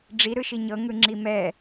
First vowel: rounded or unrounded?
unrounded